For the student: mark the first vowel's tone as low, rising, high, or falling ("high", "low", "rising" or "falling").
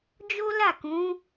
high